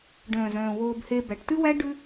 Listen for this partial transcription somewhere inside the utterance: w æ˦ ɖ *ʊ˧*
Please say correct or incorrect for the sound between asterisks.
incorrect